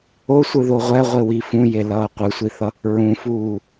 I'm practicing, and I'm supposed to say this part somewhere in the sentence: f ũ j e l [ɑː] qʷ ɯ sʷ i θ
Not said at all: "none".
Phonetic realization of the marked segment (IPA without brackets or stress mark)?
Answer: ʌː